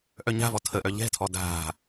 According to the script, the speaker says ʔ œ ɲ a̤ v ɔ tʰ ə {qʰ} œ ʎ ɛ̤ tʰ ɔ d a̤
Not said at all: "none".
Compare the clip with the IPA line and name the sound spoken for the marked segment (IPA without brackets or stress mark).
ʔ